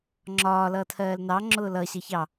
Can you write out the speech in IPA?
ŋ͡ǁ ɒː l ʌː tʰ ɜː l n ɑ ŋ͡ǁ ʊː l ʌ ɕ ʌ ç ɑ

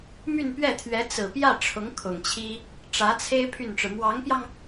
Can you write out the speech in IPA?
m y˥˧ n p ɥ ɛ˥˩ t̪ʰ ɥ ɛ˧˥ t͡s ɹ̩˨˩ p j ä˥˩ ʈ͡ʂʰ ʊ˧˥ ŋ kʰ ʊ˨˩ ŋ t͡ɕʰ i˥ | ʈ͡ʂ ä˧˥ t͡sʰ e˥ ɪ̯ pʰ y˥˩ n ʈ͡ʂ ɻ̩˩ m w ɑ˧˥ ŋ p j ɑ˧ ŋ

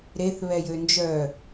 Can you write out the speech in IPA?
ɾ e θ β ɛ j ø n d͡ʒ œ

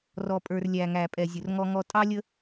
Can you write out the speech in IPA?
r ɔ˨ pʼ ə˞˨ r lʲ æ˨ ŋ æ˨ pʼ ɛ˨ zʲ ʊ˨ r ŋ ɔ˦ ŋ ɔ˦ tʼ ɑ˦ lʲ ə˦

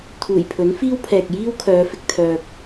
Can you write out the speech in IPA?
t̪ʰ uː˨˩ j pʰ ɵ˨˥ n f iː˥ w pʰ ɛː˨ k̚ j iː˥ w kʰ œː˨˧ f ɪ˧ k̚ t̪ʰ œː˧ k̚

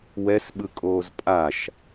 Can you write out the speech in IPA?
w ɛ s ɓ ɯ kʼ oː z pʼ a ʃ

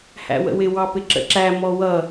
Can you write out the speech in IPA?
h æ̰ w ə̰ w ɪ w ɑ p ɪ ǁ ə̰ ǁ æ m ɔ w ʌ

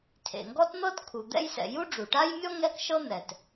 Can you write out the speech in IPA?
tʰ ḛ˩ ŋ ɡ ɔ˥ t n̪ ɤ˥ t kʰ u˩ d̪ ɛ̰˥ j s ɛ̰˩ j u˥ ɖ͡ʐ u˩ ʈ a˥ j mʲ ɔ˥ ŋ ɛ˥ k ʃ ɤ˥ n̪ ɛ˩ t

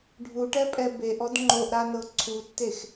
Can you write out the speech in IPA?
ɖʱ u ʈ ɛ pʼ ɛ b e ʔ ɔ d ŋ͡ǃ o ʔ ɾ a n ɤ ǀʰ u tː e x

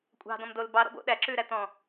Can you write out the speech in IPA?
kʷʼ ɑ̤ d ɔ̃ m d o l b ɑ ɾ ɔ̰ b o̰ ɗ æ ǁ ʉ ɾ æ t̪ ɔ̃

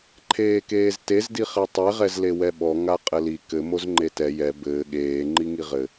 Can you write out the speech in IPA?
ǃʰ eː k eː z t e z d i χ e tˤ e ʁ ɛ z l e w ɛ ɓ ɔ ŋ a qʼ ɘ l i k ɘ m o z ŋ͡ǃ e t ɛ j ɛ b ɘː ɠ eː ŋ͡ǃ i ŋ i ʁ ɘ

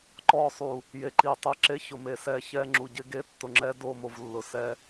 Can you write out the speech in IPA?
ǃ ɔ˦˨ sˤ u˨ | j e˨ ǃ i˨ tˤ e˦ ǁ e˦ ç ʊ˨ m e˨ s ɛ˦˨ ç ɛ˦ ŋ͡ǁ u˨ ɟ ɪ˦ ɡ e˦ tː ʊ˨ ŋ͡ǁ ɛ˦ d o˦˨ m o˨ v lː ʊ˨ s ɛ˦

